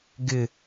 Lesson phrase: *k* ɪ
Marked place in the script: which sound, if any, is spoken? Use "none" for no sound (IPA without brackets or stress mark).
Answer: ɡ